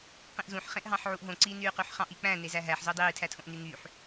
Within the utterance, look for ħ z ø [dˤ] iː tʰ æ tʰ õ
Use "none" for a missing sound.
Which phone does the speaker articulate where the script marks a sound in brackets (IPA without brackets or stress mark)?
dˤ